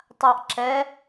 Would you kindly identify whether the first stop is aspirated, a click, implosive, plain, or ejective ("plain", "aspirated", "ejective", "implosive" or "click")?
plain